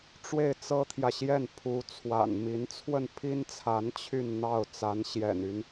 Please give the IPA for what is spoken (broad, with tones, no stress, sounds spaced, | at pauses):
ʈ͡ʂ w e˥˩ ɪ̯ t͡s ɤ˥ t̪ʰ j ä˨ ɕ j ɛ˥˩ n pʰ u˧˥ t͡sʰ w a̰˨˩ n m i˧˥ n t͡sʰ w ə˥˩ n pʰ i˥ n t͡sʰ a˧˥ n t͡ɕʰ y˥˧ n n̪ ɑ˥˩ ʊ̯ t͡s a˧˥ n ɕ j ɛ̰˨˩ n y˦ n